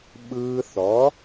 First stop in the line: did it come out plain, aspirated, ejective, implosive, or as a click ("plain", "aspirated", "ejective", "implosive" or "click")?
implosive